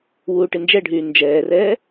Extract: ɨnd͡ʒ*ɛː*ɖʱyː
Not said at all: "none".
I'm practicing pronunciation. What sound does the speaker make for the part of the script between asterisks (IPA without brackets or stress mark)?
ɛ